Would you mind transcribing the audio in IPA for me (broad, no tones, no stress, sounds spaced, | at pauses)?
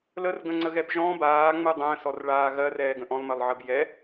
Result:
l ə r ɡ ə̃ ŋ͡ǀ ə ɣ ɛ b ʒ ɔ̃ b aː ŋ͡m ɯ dˤ ə̃ː s ɔ r ɭ aː ɣ ɜ r ɛː ɡ ə̃ ʔ ɔ̃ lˠ m ɜ lˠ ʕ ɜ b j ɛ